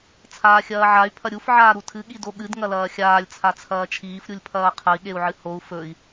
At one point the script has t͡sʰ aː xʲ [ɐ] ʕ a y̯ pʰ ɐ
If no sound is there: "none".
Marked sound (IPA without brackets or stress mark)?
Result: ɐː